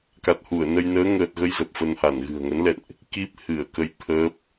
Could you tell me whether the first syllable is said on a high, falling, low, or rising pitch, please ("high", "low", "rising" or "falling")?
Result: low